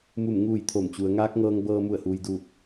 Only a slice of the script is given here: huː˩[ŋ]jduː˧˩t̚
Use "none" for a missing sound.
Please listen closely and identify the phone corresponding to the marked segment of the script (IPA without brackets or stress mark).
none